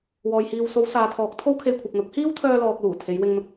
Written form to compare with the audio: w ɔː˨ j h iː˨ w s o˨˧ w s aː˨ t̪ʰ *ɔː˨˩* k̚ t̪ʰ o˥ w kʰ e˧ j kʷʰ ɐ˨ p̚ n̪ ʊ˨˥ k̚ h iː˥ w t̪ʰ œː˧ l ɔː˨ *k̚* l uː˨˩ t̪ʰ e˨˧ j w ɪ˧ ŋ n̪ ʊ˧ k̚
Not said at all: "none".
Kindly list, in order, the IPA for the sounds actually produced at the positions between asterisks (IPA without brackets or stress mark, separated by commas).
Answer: ɔː˨˥, k̚